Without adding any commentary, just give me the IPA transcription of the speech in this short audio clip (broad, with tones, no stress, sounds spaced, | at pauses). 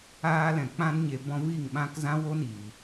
aː˧ l ɛ̃˨ k͡p ã˧ n ɲ e˨ b ɔ̃˧ v i˦˨ ŋ ɓ ã˦ k z ã˦ w o˦ n iː˨